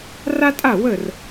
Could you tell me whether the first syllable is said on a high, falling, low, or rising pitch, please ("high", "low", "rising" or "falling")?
high